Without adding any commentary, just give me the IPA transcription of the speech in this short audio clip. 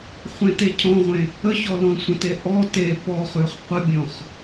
χʷẽtecʰɔ̃ʁʷẽ | əçɔ lɔ̃sʷə̃te ʔɔ te pɔχʉχ qʷəbʲɔ̃χ

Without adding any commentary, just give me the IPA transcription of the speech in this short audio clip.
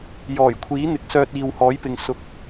jɔː˨˩jkʷʰiː˨˥n̪ɪ˨˥k̚sœː˧t̚ iː˨whɔː˨˥jpɪ˨ŋ sʊ˧k̚

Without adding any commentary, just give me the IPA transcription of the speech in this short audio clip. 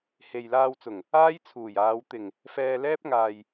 he˨jlaː˧wt͡sʊ˨˩ŋ | aː˥jt͡sʰuː˨˩jaː˨˧w t̪ɪ˨˩ŋ | fɛː˧lɛː˥p̚ŋaː˨j

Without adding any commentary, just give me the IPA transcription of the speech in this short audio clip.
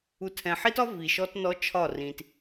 u˨tʰɛ̃˨ħi˦tɒ˦ vi˨ʃɔ˦tnɔ˦ t͡ʃʰɒ˦˨rĩ˨t

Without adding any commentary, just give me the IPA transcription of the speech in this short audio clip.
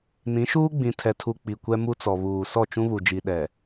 nĩ˨˦ʃuː˦ɡ͡bĩ˨ tʰɛ˨tʰu˨ k͡pi˨kʷɛ˦mu˦t͡sɔ˨ βuː˨ sɔ˦˨t͡ʃũ˦βu˨d͡ʒi˨ ɗɛ˨

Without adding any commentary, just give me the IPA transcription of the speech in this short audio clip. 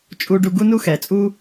t͡ʃʼu˧ ɖu˧ɡu˥nu˥ xɛ˩˧t͡sʼu˥

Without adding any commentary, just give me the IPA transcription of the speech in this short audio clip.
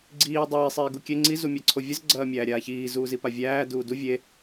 ɡ͡ǀiː dˤiːsˤ iːɡukʲe ŋ͡ǀi zumʲæǀʰovʲəz ɡ͡ǀɐːmʲæːɾʲaːçiː zuːzipavʲæː duːdu vʲe

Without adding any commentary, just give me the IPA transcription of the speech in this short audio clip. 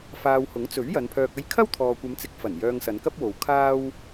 faː˧whʊ˨˥ŋ t͡sɵ˨˥ɥ jɐ˨˧npʰœː˧k̚ ɐ˥j kʰɐ˥wt̪ʰɔː˨kʷɐ˨˧mt͡sɪ˨˥k̚ fɐ˨˩n jœː˧ŋsɐ˨˧nkɐ˥p̚wo˨w kʰaː˥w

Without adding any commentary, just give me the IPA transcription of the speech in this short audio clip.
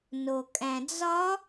nokʼæ̃d͡zɒ

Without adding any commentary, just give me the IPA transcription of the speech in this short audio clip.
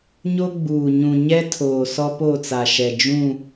ɲo˦ɡ͡buː˨ɲũ˨ ɲɛ˦tʰoː˨ sɔ˦po˦˨t͡sa˨ʃɛ˨ d͡ʒũ˦˨

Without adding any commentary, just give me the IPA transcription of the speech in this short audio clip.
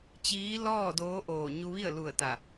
t͡ɕiː˧˥ lɔː˥˨doː˧˥ ʔoː˧˩ ɲu˧ʋi˥˨ə̯lu˧˩ə̯ t̪a˧˩

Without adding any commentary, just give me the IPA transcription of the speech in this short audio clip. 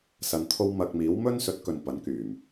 sɐ˧nt̪ʰo˥w mɐ˧k̚ miː˨˥wmɵ˥n sɵ˨˥t̚kɵ˨n pɐ˨˥nkyː˨˩m

